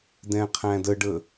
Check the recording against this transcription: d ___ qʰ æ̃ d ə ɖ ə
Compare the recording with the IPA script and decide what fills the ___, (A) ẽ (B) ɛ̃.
B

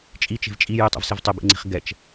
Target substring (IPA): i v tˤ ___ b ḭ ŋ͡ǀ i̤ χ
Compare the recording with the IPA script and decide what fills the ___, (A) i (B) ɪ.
B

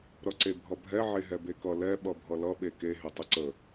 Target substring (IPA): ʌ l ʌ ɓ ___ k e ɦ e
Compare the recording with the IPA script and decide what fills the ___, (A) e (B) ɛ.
A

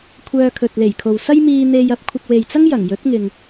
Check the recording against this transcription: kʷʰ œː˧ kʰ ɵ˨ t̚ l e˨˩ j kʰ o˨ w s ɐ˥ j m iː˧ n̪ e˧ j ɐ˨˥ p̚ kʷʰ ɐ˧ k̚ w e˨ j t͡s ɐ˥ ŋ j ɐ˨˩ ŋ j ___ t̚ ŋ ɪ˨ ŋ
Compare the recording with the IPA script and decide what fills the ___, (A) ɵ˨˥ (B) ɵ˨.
A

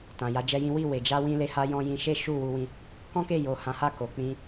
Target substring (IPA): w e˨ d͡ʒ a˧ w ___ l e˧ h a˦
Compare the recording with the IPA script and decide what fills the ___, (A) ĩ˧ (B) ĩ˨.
A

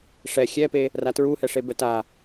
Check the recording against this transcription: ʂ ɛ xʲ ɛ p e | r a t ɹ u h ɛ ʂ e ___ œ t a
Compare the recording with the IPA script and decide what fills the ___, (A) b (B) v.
A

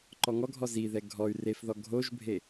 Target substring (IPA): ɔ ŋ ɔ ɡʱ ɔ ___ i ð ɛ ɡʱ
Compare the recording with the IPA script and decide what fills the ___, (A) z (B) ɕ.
A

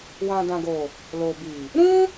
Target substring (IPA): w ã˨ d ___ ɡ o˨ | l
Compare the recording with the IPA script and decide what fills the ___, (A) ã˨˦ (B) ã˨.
B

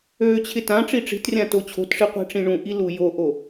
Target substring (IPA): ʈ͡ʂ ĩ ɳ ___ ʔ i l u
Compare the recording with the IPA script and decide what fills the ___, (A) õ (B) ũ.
B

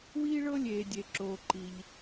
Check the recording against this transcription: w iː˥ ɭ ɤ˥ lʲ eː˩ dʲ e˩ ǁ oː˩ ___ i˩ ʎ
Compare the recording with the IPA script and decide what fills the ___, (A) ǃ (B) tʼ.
A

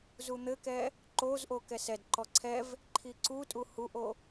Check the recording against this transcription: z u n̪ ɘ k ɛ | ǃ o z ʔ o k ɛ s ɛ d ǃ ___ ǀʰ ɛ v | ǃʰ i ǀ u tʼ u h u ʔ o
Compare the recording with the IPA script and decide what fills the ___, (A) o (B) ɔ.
B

